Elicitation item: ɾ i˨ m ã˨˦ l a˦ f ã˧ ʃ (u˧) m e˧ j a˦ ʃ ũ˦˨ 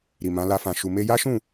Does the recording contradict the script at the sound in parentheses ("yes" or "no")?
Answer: no